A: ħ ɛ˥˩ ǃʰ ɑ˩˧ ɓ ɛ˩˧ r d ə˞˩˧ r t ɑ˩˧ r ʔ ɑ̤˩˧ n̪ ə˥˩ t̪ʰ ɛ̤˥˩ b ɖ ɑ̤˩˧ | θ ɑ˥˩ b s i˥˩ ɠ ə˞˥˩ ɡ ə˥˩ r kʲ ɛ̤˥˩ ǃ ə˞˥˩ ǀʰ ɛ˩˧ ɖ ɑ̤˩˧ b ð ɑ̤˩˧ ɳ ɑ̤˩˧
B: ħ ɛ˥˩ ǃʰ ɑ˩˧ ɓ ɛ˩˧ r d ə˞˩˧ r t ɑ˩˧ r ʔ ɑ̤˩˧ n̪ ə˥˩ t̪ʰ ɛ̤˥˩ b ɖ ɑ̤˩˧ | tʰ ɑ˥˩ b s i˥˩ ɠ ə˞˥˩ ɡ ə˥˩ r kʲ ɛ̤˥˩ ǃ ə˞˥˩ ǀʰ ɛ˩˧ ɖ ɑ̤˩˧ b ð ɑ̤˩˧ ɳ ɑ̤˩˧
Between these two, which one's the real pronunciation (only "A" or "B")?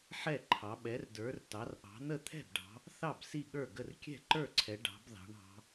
A